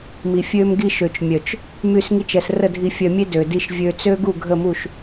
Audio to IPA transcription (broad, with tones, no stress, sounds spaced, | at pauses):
m i˨ fʲ ø˧ m ɡ i˧ ʃ ø˨ t͡ʃ mʲ œ˨ t͡ʃ | m y˦˨ s ŋ i˦ t͡ʃ ɛ˧ s r ə˦˨ dʱ i˧ fʲ œ˧ mʲ e˦ d ø˨ d i˧ ʃ vʲ ø˧ t͡s ø˦ ɡ u˦˨ ɡʱ ə˦˨ m u˦˨ ʃ